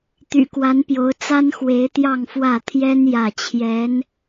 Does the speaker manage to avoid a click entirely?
yes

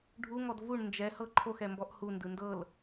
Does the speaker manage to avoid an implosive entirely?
yes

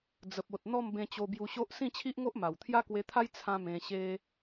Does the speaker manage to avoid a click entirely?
yes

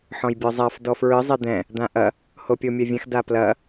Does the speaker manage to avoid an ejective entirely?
yes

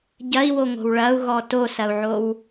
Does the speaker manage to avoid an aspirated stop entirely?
yes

